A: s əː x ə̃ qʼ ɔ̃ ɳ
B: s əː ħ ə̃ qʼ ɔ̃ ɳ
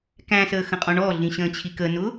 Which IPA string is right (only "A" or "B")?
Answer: A